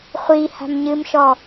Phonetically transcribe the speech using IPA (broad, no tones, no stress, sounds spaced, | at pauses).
χʷ i h a̤ m ɲ ɨ m ʃ ɔ